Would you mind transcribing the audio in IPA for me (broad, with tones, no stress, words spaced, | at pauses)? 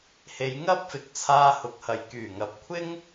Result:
he˨˧jŋɐ˥p̚ fɪ˨˥k̚t͡sʰaː˧ hʊ˨˥k̚hɐ˨˩j kyː˨˩ŋɐ˨˥p̚kʷʰɪ˥ŋ